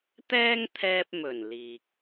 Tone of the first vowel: high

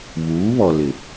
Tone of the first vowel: rising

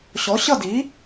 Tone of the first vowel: rising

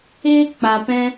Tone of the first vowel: high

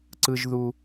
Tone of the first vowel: high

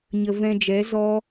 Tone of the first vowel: low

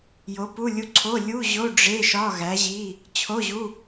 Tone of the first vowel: rising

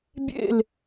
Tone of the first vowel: falling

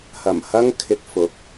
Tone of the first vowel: low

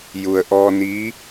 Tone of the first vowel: low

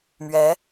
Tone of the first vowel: rising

